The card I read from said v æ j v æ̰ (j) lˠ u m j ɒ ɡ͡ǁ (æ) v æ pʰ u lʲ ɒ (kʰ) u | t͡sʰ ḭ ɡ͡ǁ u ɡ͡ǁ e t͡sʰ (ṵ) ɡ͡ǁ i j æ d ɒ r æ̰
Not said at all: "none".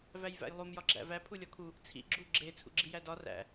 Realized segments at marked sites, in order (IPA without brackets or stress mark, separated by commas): j, æ̰, kʰ, ṵ